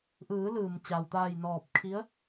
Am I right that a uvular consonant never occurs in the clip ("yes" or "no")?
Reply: yes